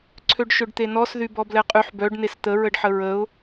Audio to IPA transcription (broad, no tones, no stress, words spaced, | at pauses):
ǀʰøɖʃøɖt̪enɔs ðybɔblɛqʼyħ bœɖ nest̪ə ɹəɖħəɹəʊ̯